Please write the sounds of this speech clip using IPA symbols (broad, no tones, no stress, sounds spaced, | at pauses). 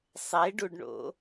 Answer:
sˤ e ɖ u ɖ ɳ o̰